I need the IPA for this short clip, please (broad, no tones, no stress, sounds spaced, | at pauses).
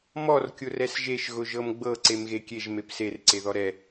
m ɔ r kʲ ʊ r ɛ s ʒ e ʃ ɣ ʊ ʒ ɤ m ɡ͡b ɤ ǀ e m ɣ e kʲ e ʒ m e p s e r ǀ e ð ɔ ɾ ɛ